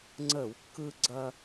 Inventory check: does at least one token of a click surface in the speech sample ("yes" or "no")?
yes